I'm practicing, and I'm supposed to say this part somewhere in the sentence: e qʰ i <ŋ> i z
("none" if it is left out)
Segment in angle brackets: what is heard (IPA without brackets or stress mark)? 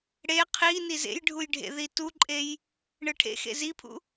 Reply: n